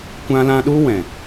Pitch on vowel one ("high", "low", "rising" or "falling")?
high